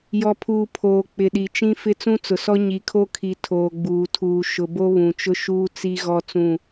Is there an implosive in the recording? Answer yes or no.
yes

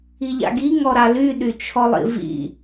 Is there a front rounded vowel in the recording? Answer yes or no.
yes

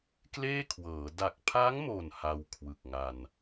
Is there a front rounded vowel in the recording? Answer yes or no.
no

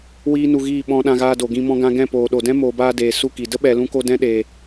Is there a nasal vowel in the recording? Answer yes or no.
yes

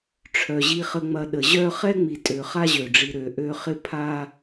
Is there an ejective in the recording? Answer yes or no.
yes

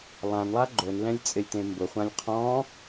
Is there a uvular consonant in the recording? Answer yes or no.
yes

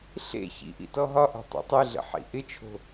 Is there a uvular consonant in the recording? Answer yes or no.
no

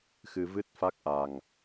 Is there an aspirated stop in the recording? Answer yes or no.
no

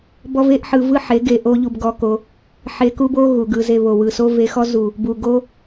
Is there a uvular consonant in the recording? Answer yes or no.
no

